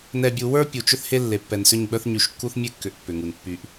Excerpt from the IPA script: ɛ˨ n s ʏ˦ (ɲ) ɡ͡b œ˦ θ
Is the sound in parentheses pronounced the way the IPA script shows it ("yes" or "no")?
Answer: yes